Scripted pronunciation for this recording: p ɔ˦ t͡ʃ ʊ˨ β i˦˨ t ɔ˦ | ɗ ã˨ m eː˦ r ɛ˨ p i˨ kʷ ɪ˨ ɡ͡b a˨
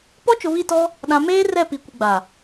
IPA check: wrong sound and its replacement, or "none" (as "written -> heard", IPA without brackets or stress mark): ɛ˨ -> ɛ˦˨